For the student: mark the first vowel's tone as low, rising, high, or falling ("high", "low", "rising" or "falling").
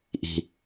low